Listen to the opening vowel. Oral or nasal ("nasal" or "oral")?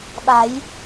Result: oral